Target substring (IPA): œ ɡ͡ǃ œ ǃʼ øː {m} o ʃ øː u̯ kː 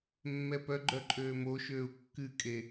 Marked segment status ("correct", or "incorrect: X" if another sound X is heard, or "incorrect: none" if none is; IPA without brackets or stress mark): correct